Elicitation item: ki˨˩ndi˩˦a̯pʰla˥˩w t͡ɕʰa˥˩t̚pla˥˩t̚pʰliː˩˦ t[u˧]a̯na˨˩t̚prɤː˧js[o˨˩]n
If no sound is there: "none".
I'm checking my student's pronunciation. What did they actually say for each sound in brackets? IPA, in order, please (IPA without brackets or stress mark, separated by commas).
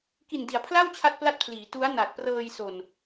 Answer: u˦˥, o˨˩